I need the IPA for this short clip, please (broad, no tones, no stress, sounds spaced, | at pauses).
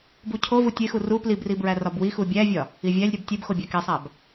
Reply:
b u cʰ o v u tʲ e x u r u p l i b r i b ɹ æ r ɒ b w i x u bʲ æ vʲ ɒ | i vʲ æ lʲ ɾʲ ɒ b tʲ e b x o bʲ æ k e sˤ æ b